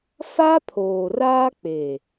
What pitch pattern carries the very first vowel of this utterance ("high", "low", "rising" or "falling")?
high